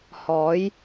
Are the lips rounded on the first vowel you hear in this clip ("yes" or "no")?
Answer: yes